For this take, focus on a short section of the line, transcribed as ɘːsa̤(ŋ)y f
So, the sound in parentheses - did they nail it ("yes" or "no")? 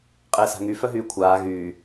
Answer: yes